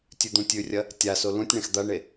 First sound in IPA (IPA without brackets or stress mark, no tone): tʲ